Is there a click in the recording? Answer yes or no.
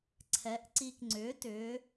yes